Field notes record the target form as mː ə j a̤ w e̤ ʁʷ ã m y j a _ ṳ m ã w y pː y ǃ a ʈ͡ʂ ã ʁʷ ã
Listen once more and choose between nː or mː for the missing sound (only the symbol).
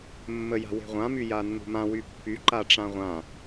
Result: nː